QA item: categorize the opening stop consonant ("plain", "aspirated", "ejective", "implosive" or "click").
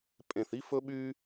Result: ejective